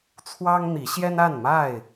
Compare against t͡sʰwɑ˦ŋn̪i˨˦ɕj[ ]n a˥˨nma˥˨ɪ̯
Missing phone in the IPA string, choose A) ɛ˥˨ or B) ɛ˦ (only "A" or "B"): B